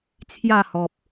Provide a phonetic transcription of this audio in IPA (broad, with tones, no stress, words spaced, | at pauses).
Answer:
t͡sʰja˥˧hɔ˨p̚